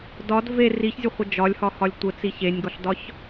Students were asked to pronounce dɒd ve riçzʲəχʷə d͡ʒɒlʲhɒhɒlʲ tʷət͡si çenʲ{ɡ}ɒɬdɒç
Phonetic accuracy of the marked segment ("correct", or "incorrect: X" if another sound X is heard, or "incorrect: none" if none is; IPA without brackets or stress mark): correct